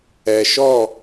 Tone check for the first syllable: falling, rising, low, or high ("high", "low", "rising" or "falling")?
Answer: low